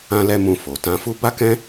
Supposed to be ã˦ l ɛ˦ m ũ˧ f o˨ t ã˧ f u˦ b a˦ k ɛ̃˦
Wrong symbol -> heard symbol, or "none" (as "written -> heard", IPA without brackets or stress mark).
none